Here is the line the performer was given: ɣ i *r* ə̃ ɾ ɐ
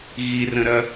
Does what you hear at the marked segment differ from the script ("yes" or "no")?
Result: no